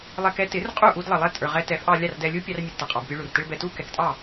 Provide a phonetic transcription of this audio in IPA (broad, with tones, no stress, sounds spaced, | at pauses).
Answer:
lˠ ɛ˧ k ɛ˥ t ɪ˩˥ r qʼ u˥˩ ʔ u˧ d lˠ ʌ˩ lˠ ɛ˥˩ tʼ ə˞˩ ʁ ɛ˧ t ɛ˩˥ f ʔ ɑ˧ lʲ ɑ˥˩ r d ɛ˧ lʲ u˥ pʲ ɑ˧ r mʲ ɛ˩ d t ʌ˩ qʼ ɑ˩ b pʲ u˧ ɭ u˩ r t ɪ˥ ɭ b ɛ˧ t u˥ k ɛ˩˥ k tʼ ɑ˥˩